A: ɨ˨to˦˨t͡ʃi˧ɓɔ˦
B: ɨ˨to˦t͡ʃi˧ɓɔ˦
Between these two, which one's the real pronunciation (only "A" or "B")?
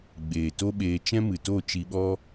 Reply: A